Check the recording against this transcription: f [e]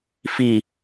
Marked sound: incorrect: i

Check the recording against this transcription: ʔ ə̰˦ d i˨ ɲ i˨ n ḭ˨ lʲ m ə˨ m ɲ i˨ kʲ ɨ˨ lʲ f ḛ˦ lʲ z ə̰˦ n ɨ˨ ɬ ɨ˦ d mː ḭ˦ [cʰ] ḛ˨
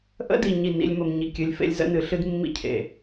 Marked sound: correct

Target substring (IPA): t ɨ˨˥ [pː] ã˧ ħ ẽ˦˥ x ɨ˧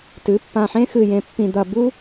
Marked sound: correct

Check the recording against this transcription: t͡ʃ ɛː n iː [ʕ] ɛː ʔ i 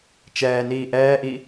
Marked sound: incorrect: ʔ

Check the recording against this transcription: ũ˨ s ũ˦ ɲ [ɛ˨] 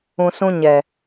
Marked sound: correct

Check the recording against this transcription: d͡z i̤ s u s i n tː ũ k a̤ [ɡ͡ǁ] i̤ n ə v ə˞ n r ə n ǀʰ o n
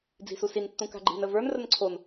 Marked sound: incorrect: ɡ͡ǃ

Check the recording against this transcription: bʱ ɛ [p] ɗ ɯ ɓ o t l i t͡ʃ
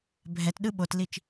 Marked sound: incorrect: t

